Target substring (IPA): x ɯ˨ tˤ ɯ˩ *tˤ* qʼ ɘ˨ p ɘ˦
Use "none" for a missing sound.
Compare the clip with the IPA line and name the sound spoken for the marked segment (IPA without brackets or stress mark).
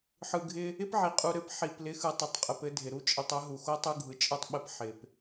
tˤ